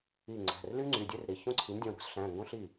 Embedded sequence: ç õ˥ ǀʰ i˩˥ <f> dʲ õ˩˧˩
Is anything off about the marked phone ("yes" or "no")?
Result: yes